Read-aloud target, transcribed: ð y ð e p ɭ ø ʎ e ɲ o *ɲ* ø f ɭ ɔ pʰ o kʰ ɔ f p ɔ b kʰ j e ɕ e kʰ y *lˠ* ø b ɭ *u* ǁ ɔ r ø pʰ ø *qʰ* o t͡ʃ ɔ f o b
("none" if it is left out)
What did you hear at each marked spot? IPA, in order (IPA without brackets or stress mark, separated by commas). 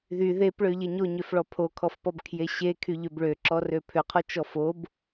ɲ, ʎ, ø, qʰ